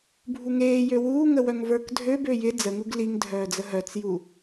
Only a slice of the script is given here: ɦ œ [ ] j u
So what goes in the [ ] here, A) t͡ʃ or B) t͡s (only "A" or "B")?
B